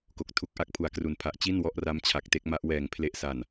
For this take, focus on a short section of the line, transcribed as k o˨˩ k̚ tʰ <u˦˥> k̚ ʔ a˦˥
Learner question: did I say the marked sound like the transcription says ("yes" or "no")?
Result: yes